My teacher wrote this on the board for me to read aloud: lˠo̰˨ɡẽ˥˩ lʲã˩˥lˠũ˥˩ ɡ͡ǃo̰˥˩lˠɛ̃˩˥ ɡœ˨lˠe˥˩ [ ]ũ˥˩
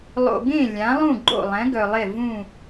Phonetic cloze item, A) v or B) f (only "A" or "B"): A